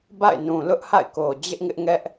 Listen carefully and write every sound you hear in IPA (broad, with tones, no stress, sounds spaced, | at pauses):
b a̰˦˨ ɪ̯ n ũ˨ l ʊ˦ ʔ h a̰˦˨ ɪ̯ k o˨ d͡ʑ ɪ˦ ʔ ŋ ɪ˦ ʔ ŋ ɛ˦ ʔ